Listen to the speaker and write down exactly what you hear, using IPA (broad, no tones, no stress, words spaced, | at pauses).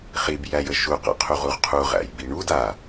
χib jæjəʃu qa̰qʰuʁuʁqʰu ʁæ̰jbiɳud a